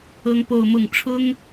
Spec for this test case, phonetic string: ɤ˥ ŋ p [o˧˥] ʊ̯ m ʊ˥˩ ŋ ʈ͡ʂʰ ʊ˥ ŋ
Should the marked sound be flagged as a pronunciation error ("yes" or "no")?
yes